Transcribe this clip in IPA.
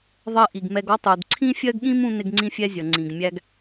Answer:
ðˤ ɜ˧ ʔ i˩ ɡ m ɛ˧ ɡ ɔ˥ tˤ u˩ d ǀʰ ĩ˥ fʲ ɜ˥ ɡ ɠ ĩ˥ m ũ˥ n ɪ˥ ɡ ŋ͡ǀ ĩ˥ fʲ ɛ˥ zʲ ʌ˩ ŋ͡ǀ ĩ˩ ɡ mʲ æ˥ ɡ

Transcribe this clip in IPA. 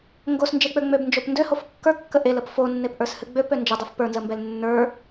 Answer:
ŋ ɡ o s n d͡ʒ e k͡p ø ŋ͡m ø b n d͡ʒ o p n d ø h o f kː ə˞ kː ə ʔ e l ə p f o nː e p ʔ ə˞ s h ɨ ɡ͡b ø p ø n d͡ʒ ə dˤ u f p ə˞ n z ə m b ɛ l nː ə˞

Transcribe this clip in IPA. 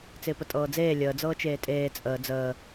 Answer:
t͡s ɪː p ə tʼ ɤː d͡z eː lʲ əː d͡z ɤː t͡ʃ eː tʼ eː t͡sʼ əː d͡z əː

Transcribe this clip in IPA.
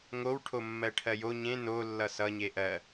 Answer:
ŋ o w ʈʰ o mː ɜ ʈʰ ɜ j o ɲ ẽ n o lː ʌ s ʌ ɲ e ʔ ɜ

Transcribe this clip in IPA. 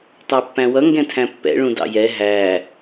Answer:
tˤ æ pː æ̃ w ʌ ŋ ɡ ɛ̃ tʰ æ̃ pː ɛ̰ ɭ ũ d ɑ̰ j ɛ ɦ æ

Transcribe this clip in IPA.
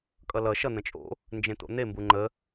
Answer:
kʼ ʌ l ʌ ʃ ʌ n̪ ə̃ t͡ʃʼ o̰ | n d͡ʒ ẽ t̪ o̰ n̪ e m b u ŋ͡ǃ ə

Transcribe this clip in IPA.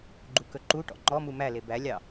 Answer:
ɡ͡ǃ u k ɵ ǃ u ʈ ɔ̰ ŋ͡ǃ ɔ m u m æ l e b æ lʲ ɑ

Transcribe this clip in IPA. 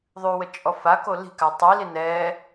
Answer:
ðˤ ʉ w ə t͡ʃʼ ɔ f a k o l i̤ k a tˤ i l i n ɛ

